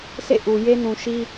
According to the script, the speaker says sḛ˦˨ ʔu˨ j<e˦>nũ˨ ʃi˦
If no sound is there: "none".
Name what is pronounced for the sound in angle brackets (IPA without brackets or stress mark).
e˦